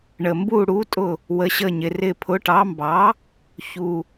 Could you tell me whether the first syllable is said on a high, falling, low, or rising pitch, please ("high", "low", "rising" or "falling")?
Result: low